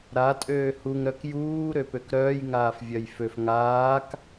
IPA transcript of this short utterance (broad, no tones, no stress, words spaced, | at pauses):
ɾa tʼøːhuŋ ɾœkjuː ɾøpøkɾœːj ŋaːfvʲœjføf ŋaːk